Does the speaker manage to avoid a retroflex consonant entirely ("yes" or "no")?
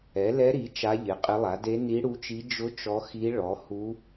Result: no